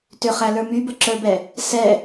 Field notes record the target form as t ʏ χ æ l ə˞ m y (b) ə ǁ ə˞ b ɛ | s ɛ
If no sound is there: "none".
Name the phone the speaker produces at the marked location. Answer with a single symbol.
b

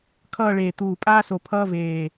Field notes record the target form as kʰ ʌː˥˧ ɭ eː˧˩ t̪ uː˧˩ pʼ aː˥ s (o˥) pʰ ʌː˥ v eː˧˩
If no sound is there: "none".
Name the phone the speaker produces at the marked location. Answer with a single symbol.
o˧˩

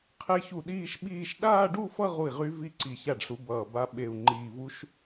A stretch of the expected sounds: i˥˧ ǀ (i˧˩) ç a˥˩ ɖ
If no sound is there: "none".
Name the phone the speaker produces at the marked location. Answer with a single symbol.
i˧˩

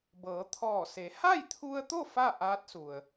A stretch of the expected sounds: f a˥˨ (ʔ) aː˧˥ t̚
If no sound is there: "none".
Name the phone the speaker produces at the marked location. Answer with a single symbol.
ʔ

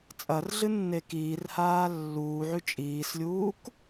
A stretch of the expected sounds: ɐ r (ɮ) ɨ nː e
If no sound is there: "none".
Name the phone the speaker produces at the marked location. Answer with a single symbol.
ɮ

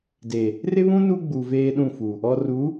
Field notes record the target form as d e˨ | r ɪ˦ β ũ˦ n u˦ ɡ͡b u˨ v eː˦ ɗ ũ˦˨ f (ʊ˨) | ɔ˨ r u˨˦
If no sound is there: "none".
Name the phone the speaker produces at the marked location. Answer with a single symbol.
u˨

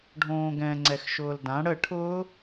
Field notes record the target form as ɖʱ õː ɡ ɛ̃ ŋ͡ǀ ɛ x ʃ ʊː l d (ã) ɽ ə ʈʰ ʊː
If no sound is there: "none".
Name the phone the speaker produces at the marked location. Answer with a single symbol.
ã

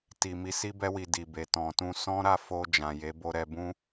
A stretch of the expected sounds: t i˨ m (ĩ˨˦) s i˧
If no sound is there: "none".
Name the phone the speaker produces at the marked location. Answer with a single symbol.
i˨˦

